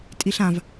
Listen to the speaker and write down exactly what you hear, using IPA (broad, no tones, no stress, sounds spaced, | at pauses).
tʼ i ɬ ã v